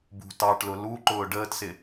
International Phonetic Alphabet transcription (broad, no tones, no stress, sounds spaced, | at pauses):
b ṳ t ɑ ʈ l ʊ l u ǃ ʊː ɖ əː t s ɪ